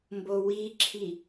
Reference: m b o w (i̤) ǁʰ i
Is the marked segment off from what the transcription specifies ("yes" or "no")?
yes